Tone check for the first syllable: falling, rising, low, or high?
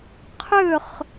falling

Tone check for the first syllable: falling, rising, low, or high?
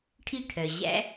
falling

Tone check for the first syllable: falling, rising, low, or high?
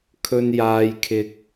high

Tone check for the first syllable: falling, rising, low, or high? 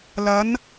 rising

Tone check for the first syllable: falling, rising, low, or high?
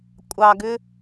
low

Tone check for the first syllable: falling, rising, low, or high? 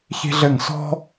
high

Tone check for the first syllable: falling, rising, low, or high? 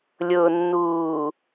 low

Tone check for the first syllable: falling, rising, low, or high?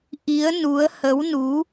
rising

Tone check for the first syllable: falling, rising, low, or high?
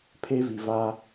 high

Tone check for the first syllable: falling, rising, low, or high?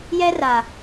high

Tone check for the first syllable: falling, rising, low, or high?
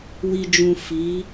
low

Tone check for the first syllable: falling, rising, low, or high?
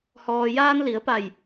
low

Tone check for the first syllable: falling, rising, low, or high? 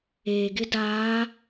low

